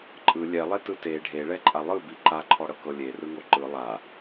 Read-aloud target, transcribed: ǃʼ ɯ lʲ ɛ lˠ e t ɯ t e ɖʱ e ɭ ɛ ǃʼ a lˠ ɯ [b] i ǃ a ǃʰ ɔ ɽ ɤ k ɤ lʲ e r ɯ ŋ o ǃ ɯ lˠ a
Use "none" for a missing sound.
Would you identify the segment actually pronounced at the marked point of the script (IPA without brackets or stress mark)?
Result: b